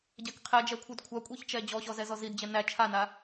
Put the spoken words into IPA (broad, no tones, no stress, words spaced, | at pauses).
ɟækqʰɛd͡ʒɛkʷʰɯd kʷʰakʷʼiçt͡ʃɛ d͡ʑɔɕɔ zɛzɔzidd͡ʑɛ næ t͡ʃʰana